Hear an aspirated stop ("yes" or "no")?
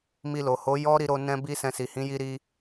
no